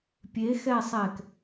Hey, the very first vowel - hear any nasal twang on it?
no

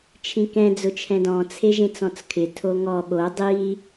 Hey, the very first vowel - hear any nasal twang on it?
yes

